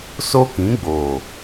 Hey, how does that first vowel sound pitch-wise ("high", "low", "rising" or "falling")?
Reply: high